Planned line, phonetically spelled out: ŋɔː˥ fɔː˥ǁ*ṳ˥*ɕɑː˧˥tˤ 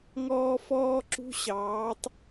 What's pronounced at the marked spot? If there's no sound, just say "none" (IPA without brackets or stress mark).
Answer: ṳ˥